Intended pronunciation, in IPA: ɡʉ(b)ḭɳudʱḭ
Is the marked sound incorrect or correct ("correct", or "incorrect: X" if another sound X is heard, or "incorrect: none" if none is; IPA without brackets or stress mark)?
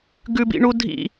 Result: correct